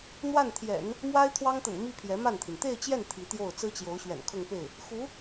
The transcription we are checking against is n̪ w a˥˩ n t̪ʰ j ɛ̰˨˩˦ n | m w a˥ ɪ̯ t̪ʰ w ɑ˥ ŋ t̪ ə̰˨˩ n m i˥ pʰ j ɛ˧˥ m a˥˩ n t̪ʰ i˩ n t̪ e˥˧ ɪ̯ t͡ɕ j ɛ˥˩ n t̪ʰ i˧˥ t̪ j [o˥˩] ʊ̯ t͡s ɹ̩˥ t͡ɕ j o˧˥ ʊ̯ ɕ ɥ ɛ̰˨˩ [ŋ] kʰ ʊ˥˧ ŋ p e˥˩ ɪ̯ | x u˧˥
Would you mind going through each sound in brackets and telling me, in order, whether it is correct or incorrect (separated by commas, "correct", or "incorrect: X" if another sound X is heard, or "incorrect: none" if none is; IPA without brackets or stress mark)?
correct, incorrect: n